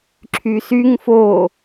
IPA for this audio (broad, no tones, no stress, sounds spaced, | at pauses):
ǁʰ y s y ŋ f o